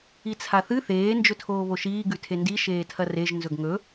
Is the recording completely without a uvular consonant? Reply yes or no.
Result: yes